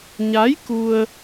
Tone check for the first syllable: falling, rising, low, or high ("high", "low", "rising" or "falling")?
rising